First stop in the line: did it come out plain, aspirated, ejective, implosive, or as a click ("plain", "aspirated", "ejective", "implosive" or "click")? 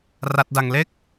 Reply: plain